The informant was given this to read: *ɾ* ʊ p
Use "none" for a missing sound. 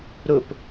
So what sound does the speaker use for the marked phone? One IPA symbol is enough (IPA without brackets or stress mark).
ɾ